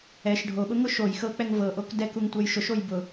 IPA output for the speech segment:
ɛ ʃ ɖʱ o ɓ ʊ ŋ ʊ ʃ o j x ɤ k͡p ɛ ŋ v ɤ ʔ o k d ɛ k u ŋ tʷ ɛ j ʃ ʊ ʃ o j b ʊ

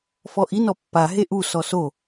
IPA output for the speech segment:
f ɔ ʔ i n ɔ pː a ɦ e ʔ u s ɔ s o

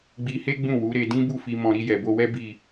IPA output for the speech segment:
ɡ͡b i˧ h e˦ ɡ͡b ũ˦˨ w u˨˦ ɾ e˧ d ĩ˦ b u˦˨ f i˧ m ɔ̃˧ ɾ i˧ j ɛ˨ b o˧ w ɛ˦ b i˦˨

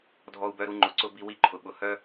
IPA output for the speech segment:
dʱ ɔ˧ u̯ b œ˧ ɾ u˧ ŋ͡ǃ ʊ˨ ǀ ʊ˧ b i˧ w i˧ ǃʰ ʊ˨ ɓ ʊ˨ h œ˦

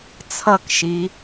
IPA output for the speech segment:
t͡sʰ ʌ k ʃ i

